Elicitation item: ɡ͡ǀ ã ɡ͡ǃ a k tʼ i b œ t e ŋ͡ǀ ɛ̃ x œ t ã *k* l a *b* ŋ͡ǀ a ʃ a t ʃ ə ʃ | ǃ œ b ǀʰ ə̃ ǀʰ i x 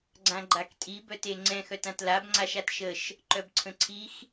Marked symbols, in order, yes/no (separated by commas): no, yes